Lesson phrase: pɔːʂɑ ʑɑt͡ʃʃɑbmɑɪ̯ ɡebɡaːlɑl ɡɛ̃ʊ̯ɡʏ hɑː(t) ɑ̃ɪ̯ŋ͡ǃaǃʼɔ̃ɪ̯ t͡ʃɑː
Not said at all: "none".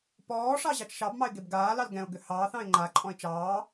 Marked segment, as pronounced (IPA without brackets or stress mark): θ